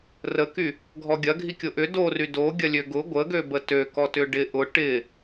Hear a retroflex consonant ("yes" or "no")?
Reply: yes